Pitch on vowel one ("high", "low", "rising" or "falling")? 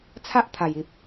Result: high